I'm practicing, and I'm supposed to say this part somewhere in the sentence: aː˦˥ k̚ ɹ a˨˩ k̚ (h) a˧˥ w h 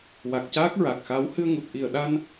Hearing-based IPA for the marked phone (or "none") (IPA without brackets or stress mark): x